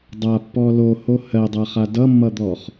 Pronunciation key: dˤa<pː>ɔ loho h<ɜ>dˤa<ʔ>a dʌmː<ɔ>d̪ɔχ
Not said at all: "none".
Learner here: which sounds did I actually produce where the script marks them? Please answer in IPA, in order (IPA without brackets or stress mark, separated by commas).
pː, ɜ, χ, ʌ